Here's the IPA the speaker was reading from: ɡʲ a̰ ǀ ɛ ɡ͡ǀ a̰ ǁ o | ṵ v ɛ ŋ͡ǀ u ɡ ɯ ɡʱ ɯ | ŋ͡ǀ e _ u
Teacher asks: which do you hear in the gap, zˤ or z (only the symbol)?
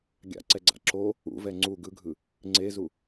z